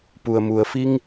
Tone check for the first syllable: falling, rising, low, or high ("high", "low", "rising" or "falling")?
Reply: low